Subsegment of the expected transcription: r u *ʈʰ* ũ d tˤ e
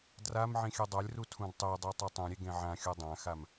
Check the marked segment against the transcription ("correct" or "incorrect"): incorrect